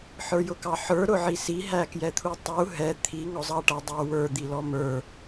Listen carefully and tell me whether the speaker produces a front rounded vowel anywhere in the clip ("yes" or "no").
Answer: no